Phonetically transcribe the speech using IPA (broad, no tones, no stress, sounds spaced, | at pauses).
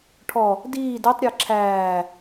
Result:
ʈʰ ɔ | d iː d ɛ tˤ ɾʲ əː ǁʰ æː